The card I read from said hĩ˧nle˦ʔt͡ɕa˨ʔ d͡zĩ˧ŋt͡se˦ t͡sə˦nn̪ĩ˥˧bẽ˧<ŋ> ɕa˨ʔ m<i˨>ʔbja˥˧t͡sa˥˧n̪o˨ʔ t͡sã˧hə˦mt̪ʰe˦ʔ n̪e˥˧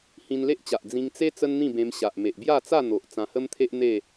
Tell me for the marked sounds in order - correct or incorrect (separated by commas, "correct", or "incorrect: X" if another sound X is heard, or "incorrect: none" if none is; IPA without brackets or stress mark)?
incorrect: m, incorrect: e˨